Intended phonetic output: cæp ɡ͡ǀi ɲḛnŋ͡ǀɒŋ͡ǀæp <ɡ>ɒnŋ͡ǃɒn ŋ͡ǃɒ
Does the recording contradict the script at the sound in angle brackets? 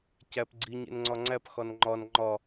yes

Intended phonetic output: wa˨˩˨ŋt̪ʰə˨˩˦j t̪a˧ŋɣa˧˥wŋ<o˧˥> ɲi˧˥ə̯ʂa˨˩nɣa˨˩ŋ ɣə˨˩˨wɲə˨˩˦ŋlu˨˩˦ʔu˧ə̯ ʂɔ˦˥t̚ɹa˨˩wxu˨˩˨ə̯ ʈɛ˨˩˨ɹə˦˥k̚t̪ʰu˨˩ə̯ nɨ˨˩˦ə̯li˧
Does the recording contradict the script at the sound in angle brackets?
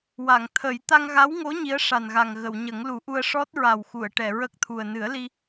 no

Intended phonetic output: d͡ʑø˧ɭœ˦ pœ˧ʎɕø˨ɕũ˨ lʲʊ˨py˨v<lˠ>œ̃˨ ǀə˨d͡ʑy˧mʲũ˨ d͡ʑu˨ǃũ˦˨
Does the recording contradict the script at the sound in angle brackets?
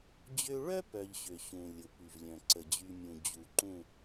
yes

